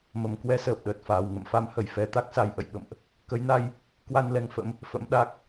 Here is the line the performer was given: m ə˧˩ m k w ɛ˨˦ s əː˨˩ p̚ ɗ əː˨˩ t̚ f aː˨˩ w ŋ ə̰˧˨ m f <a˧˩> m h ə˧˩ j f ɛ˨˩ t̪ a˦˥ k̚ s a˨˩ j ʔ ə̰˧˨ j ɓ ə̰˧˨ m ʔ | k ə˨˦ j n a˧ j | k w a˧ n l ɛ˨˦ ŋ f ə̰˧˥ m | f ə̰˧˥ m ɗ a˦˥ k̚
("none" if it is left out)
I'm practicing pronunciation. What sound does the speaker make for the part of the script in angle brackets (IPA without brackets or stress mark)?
a˨˦